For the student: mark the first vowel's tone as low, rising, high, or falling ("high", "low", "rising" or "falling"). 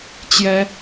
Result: rising